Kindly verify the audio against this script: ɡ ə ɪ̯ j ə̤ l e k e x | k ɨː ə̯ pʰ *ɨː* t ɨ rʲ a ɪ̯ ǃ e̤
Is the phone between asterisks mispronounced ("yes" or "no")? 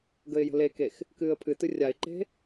yes